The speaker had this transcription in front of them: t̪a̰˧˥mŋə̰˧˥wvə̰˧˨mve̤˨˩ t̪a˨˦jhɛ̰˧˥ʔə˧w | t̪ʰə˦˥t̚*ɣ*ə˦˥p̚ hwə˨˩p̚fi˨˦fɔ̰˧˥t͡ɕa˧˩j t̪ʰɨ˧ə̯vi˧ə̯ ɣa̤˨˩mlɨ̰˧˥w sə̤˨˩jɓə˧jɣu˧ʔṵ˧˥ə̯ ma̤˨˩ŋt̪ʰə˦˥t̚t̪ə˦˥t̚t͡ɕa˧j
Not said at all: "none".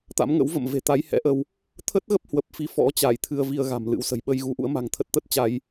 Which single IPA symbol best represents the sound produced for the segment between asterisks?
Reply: ɣ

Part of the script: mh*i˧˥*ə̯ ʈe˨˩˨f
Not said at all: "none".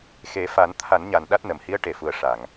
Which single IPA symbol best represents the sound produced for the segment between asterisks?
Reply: i˧˥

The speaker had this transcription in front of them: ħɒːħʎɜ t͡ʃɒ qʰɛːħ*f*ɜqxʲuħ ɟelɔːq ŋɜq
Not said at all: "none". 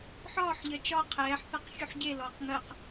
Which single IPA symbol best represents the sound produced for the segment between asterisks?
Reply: θ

